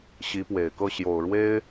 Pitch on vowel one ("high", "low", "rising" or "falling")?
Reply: rising